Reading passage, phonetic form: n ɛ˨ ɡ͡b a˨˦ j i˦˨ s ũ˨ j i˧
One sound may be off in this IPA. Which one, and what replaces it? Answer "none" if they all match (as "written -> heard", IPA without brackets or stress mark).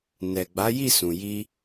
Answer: none